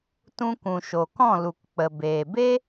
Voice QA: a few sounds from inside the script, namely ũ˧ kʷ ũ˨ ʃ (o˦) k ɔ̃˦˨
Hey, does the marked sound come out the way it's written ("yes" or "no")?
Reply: no